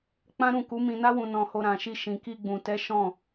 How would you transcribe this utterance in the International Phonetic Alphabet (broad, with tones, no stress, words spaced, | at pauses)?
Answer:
k͡pã˦ɾũ˦˨ ku˨˦mĩ˧na˦wũ˧ nɔ̃˧ho˧ɾã˨ʃi˧ ʃĩ˨ki˧ ɡ͡bũ˨tɛ˨˦ ʃɔ̃˦˨